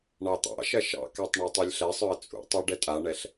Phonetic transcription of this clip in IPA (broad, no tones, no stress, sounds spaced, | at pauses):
ɳ ɑ t̪ ɑ̰ ʃ ɐ ʃ ɑ̰ k a tˤ ɳ a tˤ o lʲ ɬ ɛ sˤ œ ə̯ t͡sʼ ṵ tˤ a ɖ ɛ tʼ a ɳ ɛ ɬ